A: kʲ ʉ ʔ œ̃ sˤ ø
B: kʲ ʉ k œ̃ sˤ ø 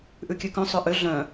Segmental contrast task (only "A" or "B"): B